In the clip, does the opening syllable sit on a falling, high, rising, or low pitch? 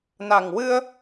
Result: low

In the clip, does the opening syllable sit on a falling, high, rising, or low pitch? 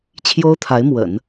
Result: high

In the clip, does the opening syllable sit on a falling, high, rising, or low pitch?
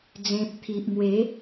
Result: low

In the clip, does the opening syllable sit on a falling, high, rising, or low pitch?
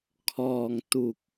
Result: low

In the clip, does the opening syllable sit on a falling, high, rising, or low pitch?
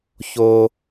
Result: high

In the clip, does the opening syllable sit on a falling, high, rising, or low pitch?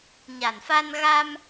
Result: low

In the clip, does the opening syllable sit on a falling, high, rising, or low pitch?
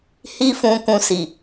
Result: high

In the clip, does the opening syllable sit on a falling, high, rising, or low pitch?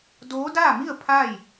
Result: rising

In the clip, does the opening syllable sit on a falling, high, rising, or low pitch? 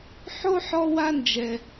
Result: high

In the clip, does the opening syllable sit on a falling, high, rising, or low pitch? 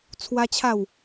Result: high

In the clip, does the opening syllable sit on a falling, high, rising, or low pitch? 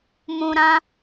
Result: low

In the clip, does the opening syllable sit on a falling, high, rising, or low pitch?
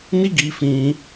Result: high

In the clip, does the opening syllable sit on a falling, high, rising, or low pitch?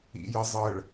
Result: low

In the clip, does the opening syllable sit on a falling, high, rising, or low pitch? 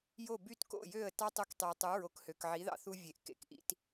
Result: falling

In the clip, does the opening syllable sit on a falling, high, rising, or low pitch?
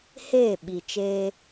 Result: falling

